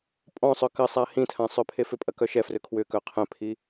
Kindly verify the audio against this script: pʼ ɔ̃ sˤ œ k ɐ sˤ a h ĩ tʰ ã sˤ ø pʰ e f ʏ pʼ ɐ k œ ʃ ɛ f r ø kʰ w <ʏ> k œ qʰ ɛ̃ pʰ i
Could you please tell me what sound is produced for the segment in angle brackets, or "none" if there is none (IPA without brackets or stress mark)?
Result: ʏ